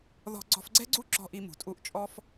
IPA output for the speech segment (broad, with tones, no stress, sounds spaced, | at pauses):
ð ɔ̤˧ ɡ͡ǀ ɔ̤˧ f ɡ͡ǀ ɛ̤˦ ɡ͡ǀ u˦ ǁ ɔ̤˧ ʔ i˧ m ṳ˨ tʼ u˧ ʔ t͡ʃʼ ɔ˦ f